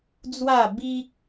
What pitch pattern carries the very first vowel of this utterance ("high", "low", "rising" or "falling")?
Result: falling